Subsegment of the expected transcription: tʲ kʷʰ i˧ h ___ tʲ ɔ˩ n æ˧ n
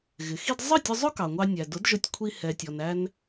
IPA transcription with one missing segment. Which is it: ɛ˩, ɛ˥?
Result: ɛ˩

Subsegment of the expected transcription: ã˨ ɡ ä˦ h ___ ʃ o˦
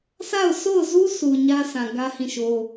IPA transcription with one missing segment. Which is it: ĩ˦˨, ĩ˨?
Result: ĩ˦˨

